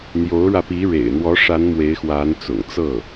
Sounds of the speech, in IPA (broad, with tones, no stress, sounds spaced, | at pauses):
n̪ j o˧˥ ʊ̯ ɻ ä˧ p i˧˥ ɻ ḛ˨˩ ɪ̯ n̪ w ɔ˧˥ ʂ a˧˥ n m w e˧˥ ɪ̯ x w a˧˥ n t͡s ʊ̰˨˩ ŋ t͡s ɤ˥˩